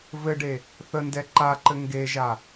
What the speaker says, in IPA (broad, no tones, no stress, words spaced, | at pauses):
vɘɖe | θəndɛ ǃaǃɘ ŋɡeʒa